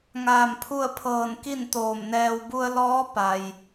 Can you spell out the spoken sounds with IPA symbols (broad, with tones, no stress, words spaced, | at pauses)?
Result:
ŋaː˧˩mpʰu˥˨ə̯pʰɤː˧˩n ki˥˨nt̪oː˧˩mnɛː˧w bu˧ə̯lɔː˧˥ pa˩j